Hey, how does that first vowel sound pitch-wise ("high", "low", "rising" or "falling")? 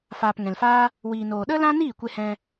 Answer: low